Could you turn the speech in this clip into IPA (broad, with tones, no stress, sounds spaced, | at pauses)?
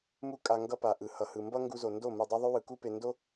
m u˦ kʼ a˧ ŋ ɡ ʌ˧ p a˨ ʔ ɯ˨ h ʌ˨ h ɯ˨ m b ʌ˦ ŋ ɡ u˧ z o˨ n d o˦˨ m ɯ˨ dˤ u˧ ðˤ u˦ w ɯ˨ k u˦ p e˧ n d o˦